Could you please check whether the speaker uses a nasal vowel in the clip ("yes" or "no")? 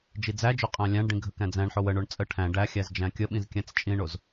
yes